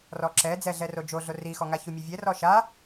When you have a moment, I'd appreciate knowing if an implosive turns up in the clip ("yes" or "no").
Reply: no